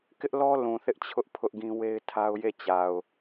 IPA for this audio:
k ɪ˦ ʔ l ɔ˦ l ũ˨ θ ɪ˦ ʔ t͡ɕʰ ʊ˦ ʔ pʰ ʊ˦ ʔ ɡ ĩ˦ w e˦ ɪ̯ tʰ a˦ ʊ̯ j e˦˨ t͡ɕ a˨ ʊ̯

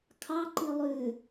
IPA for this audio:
kʰ ɑ ǃ i lˠ ʉ

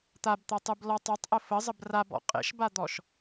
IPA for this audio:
t̪ a b t̪ a tˤ ɯ b l ɔ tˤ a tˤ ʔ ə f ə zˤ ə b r a b ɔ̰ qʼ ḛ ʃ b a d̪ ɔ ʃ

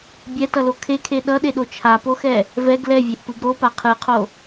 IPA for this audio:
bʲ ɛ t ʌ l o kʰ e kʰ e ɗ ʌ ɗ e ɗ o t͡ʃʰ a p o x ɛ | v ɛ ɡ l ɛ vʲ e ʔ p ɯ ɡ ɾ o p a qʰ ɯ qʰ o

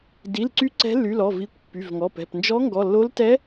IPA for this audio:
d i˩˧˩ l ǀ y˧˥ ǀ ɛ̤˧˥ lː y˩˧˩ l ɔ˩˧˩ v i˩˧˩ kʷ pː y˩˧˩ v ŋ ɔ˩˧˩ p ɛ̤˩˧˩ p n d͡ʒ ɔ˧˥ ŋ ɡ ɔ˩˧˩ lː o˧˥ l t ɛ˧˥

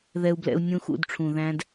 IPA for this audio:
ð ɛ˧ u̯ b l ɛ̰˧ u̯ nʲ ũ˧ x ṵ˦˨ d ʈ͡ʂʰ ũ˨ ð æ̃˦ d

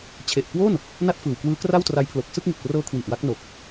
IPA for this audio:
t͡ɕʰ e˨˩ ʔ k w o˥˩ n | n a˥˩ t̚ f ɯː˨˩ w k w ɯː˦˥ k r a˥˩ w t r a˦˥ j pʰ l o˨˩ k̚ s ɯ˥˩ k̚ ŋ i˨˩ t̚ p r ɤː˦˥ kʰ w i˨˩ ʔ w a˦˥ k̚ n o˨˩ k̚

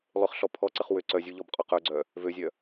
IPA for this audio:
lˠ ʏ χ ɬ ɔ pʰ ɔ ǀ ə χ w ʏ ǀ œ zʲ u ʎ ɔ b qʼ ɔ q œ ɡ͡ǀ œ | v ø zʲ œ

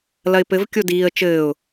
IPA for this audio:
l ɐ ɪ̯ p ɘ v kʲ o d iː ə̯ t͡ʃ ɘː ʊ̯

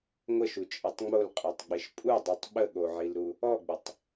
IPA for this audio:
ŋʷ ə ʃ u t͡ʃʼ i tˤ ŋ͡m o l qʼ ɛ tˤ ɡ͡b ɪ ʃ pʼ u dˤ u tˤ ɓ ə ɠ o ʕ i l ɾ u | ɔ ɡ͡b ɪ tˤ

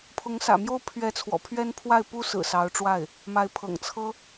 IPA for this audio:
pʰ ʊ˧˥ ŋ s ä̰˨˩ m j o˥ ʊ̯ pʰ ɥ ɛ˧˥ t͡sʰ w ɔ̰˨˩ pʰ ɥ ɛ˥ n pʰ w a˥˩ ɪ̯ p u˥ s ɹ̩˨˩ s ɑ˧˥ ʊ̯ ʈ͡ʂ w a˥˩ ɪ̯ | m a˧˥ ɪ̯ pʰ ɤ̰˨˩ ŋ t͡sʰ ɤ˥

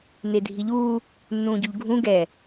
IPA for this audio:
n e dʱ i ʎ uː | nː ũː ɟ u ʎ ɡʱ ũ ɡ ɛ

